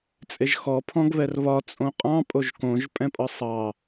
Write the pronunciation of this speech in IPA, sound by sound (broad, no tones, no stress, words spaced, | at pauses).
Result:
t͡sʼeʒxɔ pʰɔ̃ɡβɛrβɒ t͡sʼõqʼɑ̃ pʼoʒkõʒ pʼɛ̃pʼɒsˤɑ